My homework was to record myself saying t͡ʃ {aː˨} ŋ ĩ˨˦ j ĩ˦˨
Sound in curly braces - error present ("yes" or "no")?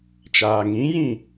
no